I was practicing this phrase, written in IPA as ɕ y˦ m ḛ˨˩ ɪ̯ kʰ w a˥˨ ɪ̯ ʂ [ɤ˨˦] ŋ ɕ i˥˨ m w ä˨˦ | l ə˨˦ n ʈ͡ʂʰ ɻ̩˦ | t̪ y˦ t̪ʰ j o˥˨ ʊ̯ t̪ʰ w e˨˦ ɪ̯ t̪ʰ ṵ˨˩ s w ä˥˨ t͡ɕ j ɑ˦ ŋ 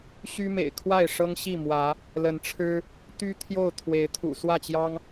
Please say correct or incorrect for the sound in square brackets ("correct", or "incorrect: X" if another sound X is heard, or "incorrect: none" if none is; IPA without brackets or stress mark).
incorrect: ɤ˦